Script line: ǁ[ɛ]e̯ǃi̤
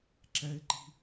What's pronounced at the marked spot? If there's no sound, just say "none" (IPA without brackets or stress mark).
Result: ɛ